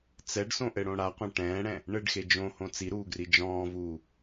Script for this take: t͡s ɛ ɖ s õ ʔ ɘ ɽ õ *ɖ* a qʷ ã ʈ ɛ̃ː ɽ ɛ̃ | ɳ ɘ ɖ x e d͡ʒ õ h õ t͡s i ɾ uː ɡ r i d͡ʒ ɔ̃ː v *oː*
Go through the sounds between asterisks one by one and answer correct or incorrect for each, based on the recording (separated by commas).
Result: incorrect, incorrect